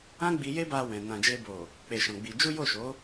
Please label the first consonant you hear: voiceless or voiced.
voiced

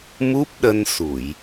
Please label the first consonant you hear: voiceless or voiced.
voiced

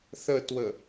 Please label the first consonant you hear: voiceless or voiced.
voiceless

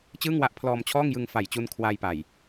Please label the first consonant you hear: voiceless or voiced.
voiceless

